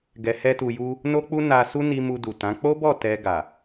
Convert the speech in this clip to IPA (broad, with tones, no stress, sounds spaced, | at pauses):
ɡ ɛ˧ h ɛ˦ t u˧ j u˦ | n o˦ k͡p u˦ n a˧ s u˦ n i˧ m u˧ d u˨ t ã˨˦ k͡p o˦ b ɔ˦˨ t ɛ˧ ɡ a˨